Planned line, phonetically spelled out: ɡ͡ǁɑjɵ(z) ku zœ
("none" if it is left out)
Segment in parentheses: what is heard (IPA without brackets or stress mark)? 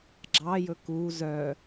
none